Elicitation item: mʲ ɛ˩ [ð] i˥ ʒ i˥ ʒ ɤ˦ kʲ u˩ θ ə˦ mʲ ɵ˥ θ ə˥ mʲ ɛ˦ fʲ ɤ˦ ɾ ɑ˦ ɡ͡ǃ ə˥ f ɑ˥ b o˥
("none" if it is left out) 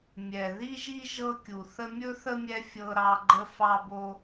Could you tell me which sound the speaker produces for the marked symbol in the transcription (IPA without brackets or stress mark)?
ð